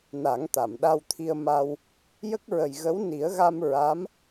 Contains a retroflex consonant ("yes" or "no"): no